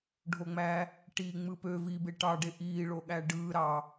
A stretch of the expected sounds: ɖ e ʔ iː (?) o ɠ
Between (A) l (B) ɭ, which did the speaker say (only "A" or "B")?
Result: B